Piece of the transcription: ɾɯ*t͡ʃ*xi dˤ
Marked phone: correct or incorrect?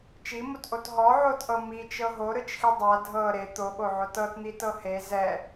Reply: correct